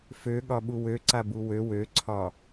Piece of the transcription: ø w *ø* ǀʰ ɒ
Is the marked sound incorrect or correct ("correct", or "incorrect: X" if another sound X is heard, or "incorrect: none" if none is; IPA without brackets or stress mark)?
correct